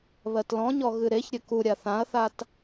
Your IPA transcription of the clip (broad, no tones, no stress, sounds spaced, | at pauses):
β ɜ t l ɔ̃ ɲ ɔ ɣ ɨ ɾ e ç ɾʲ ɘ k u ɾʲ a θ ã ɐ̯ θ a t